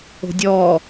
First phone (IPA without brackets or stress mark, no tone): o̤